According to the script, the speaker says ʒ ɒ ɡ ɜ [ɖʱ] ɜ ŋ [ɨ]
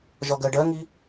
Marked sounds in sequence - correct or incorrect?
incorrect: ɖ, incorrect: i

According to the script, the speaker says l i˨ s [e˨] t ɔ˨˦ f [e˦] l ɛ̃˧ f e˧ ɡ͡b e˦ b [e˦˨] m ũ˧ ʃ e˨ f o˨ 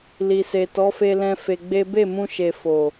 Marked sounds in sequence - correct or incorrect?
correct, incorrect: e˧, correct

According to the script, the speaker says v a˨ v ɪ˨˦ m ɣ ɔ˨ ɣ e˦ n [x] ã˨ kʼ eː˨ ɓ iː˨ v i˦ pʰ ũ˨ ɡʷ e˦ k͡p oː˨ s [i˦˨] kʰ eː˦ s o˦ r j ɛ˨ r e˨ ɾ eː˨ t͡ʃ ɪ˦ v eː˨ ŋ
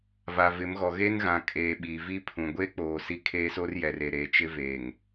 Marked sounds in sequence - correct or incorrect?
incorrect: ɣ, correct

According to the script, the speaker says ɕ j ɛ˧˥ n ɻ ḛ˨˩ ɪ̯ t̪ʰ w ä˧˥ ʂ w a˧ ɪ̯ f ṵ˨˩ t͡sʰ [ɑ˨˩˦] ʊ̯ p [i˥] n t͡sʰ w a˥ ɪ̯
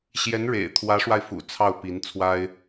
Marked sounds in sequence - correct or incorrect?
incorrect: ɑ˥˩, incorrect: i˧˥

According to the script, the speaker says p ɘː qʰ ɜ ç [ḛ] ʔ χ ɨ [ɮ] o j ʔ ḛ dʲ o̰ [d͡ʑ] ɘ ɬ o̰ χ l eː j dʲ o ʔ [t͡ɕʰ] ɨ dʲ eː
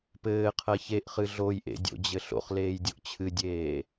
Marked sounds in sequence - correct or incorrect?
incorrect: e, correct, correct, correct

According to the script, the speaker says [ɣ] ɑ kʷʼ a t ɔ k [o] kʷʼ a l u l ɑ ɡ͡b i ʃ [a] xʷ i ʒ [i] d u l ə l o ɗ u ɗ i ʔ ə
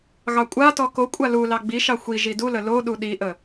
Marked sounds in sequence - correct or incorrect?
correct, correct, incorrect: ɑ, correct

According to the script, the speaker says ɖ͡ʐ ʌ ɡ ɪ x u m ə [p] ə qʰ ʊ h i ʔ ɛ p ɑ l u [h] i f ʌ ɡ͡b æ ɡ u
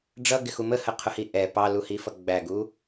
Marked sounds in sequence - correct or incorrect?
incorrect: h, correct

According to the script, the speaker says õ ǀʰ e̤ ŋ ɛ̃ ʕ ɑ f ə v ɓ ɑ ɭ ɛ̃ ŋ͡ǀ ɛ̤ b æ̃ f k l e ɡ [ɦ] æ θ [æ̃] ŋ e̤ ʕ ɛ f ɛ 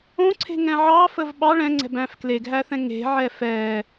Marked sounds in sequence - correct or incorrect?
correct, incorrect: ɛ̃

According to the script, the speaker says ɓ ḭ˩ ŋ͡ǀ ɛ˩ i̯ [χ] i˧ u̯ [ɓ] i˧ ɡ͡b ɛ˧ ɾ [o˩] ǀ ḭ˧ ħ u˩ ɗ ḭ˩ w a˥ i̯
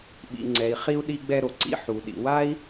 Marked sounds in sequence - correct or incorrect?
correct, incorrect: ɗ, correct

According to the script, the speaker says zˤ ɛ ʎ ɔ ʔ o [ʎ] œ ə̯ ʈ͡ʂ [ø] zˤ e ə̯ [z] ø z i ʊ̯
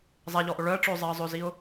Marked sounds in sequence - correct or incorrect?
incorrect: ɭ, correct, incorrect: zˤ

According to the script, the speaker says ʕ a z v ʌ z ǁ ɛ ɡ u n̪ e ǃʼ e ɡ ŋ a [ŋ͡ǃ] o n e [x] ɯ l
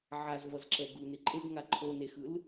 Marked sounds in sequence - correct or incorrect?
incorrect: ǃʰ, correct

